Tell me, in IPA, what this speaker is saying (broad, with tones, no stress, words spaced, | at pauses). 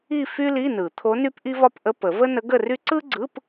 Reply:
i˥˧ fy˥li˧˥˧nɯ˨˩˦ t̪ʰo˧˥ny˥pʔi˥vɒ˥p ʔə˧˥˧pə˨˩˦ və˥nə˧˥ɡə˥˧ry˥ ǀɯ˥ɡ͡ǀɯ˧˥˧p